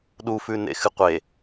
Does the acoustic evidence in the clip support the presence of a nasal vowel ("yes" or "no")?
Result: no